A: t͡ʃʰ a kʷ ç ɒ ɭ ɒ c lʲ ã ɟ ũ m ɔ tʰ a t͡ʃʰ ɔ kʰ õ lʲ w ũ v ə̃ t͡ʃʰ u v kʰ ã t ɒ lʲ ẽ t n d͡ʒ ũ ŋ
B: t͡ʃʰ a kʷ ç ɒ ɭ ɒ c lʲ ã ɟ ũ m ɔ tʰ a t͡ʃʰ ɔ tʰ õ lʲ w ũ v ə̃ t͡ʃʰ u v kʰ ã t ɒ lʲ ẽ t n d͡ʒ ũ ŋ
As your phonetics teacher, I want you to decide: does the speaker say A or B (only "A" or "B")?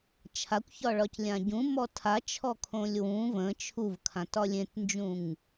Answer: A